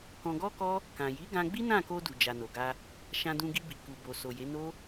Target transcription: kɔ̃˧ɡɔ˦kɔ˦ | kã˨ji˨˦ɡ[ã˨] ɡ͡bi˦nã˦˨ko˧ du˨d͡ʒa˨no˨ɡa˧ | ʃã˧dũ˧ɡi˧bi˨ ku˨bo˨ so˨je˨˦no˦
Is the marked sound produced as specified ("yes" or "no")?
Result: no